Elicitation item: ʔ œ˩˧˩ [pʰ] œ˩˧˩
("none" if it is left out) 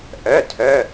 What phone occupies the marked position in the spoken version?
tʰ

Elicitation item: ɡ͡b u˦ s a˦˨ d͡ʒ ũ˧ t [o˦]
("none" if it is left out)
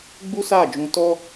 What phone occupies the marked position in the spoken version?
ɔ˦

